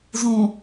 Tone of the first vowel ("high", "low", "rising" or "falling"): low